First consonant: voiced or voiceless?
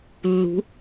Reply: voiced